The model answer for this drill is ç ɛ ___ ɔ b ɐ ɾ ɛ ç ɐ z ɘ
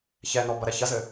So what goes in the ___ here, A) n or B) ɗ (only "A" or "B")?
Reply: A